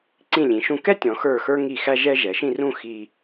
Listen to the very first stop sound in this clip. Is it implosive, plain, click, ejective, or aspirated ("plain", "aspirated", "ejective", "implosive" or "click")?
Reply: click